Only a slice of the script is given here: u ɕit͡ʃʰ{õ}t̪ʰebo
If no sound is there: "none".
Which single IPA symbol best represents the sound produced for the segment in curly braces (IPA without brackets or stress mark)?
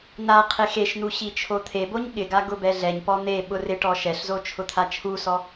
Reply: o